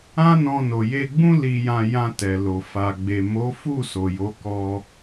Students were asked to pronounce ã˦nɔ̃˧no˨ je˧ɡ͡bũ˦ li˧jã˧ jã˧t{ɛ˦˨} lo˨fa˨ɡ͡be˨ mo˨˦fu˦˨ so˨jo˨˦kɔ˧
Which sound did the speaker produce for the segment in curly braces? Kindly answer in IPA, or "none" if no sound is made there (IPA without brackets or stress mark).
ɛ˨